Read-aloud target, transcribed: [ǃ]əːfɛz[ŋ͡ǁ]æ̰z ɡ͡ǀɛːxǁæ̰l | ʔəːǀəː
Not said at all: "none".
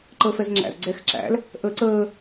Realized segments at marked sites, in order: ǃ, ŋ͡ǁ

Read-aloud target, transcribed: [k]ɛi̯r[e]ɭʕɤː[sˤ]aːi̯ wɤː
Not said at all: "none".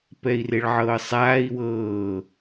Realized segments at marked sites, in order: p, e, sˤ

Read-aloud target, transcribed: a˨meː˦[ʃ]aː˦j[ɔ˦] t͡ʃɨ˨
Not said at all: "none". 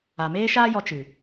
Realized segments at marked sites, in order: ʃ, ɔ˧

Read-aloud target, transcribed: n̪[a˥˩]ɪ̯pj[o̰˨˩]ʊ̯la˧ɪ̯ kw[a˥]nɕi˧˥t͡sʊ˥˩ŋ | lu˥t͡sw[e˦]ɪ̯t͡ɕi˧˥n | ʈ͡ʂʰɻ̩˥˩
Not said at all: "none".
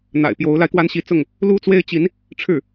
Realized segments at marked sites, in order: a̰˨˩, o˧˥, a˥, e˥

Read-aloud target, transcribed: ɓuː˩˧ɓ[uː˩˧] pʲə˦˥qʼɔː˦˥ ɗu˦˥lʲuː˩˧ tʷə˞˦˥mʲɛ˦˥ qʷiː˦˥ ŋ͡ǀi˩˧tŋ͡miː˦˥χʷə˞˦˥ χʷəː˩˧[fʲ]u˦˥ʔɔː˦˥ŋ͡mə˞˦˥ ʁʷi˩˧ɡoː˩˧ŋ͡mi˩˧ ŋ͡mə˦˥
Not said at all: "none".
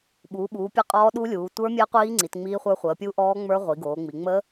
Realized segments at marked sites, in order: uː˩˧, pʲ

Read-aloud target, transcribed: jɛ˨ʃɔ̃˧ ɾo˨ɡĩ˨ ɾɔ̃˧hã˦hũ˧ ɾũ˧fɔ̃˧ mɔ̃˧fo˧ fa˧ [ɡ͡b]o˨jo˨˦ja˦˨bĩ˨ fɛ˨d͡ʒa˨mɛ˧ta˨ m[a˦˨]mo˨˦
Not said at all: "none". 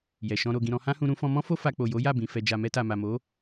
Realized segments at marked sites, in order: k͡p, a˨

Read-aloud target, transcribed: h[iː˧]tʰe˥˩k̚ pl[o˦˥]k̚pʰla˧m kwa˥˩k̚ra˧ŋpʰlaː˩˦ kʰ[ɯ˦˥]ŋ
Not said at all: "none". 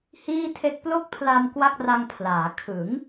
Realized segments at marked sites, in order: iː˥˩, o˥˩, ɯ˩˦

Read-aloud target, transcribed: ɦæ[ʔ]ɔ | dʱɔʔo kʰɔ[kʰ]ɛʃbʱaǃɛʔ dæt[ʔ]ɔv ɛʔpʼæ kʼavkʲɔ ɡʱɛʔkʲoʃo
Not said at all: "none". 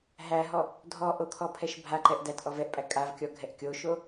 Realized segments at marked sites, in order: ɦ, pʰ, ʔ

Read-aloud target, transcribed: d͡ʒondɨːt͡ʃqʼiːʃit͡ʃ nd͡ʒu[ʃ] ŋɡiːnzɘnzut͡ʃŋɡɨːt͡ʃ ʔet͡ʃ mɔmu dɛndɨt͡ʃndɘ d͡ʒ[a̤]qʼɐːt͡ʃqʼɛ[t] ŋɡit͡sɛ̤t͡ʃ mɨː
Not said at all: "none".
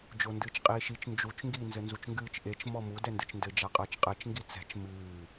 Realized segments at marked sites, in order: t͡ʃ, a, t͡ʃ

